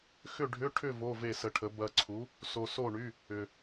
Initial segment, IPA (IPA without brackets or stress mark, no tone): x